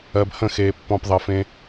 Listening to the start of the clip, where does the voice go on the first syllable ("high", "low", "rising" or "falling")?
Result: low